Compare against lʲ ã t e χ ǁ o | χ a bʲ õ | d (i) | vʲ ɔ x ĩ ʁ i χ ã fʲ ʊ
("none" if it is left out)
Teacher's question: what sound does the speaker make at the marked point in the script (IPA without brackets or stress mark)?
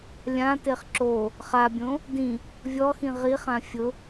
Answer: ĩ